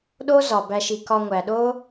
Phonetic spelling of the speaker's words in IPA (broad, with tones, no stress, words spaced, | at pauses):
ɗo˦zɒ˩ bæ˨ʃi˩ kɒ˨ŋʷæ˩ɗo˦